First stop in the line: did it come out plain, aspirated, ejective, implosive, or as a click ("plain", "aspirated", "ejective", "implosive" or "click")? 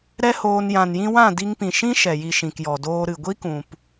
plain